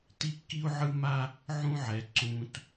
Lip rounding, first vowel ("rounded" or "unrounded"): unrounded